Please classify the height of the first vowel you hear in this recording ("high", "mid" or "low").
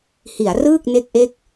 high